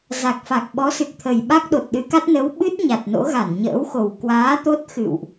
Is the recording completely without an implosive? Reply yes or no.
no